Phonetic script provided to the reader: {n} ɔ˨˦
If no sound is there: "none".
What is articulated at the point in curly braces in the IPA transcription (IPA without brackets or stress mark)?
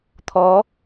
t̪ʰ